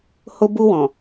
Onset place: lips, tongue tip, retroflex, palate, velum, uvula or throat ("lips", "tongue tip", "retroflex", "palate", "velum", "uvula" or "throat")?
throat